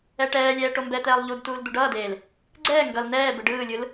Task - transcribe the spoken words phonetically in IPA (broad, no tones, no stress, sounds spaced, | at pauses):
ɛ ʈ ɛː lʲ ɛː ʈ o m b ɛ t̪ ɛː lˠ ʎ u d t uː l d̪ u ɖ ʌː d eː l | ɡ͡ǀ ɛː ŋ ɡ ʌ l n ɛː b ɯ ɖ ɯː lʲ ɯ l